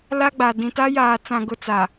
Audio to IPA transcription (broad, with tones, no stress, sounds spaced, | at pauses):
l a˦ ɡ͡b a˨ d ĩ˨ t a˦ j aː˨ t͡s ã˨ ɡ ʊ˦ t͡s a˨